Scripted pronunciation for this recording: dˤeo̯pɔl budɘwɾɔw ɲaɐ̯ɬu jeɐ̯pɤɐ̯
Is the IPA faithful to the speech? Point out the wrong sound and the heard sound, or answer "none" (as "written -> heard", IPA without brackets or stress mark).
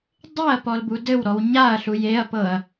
o̯ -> ɐ̯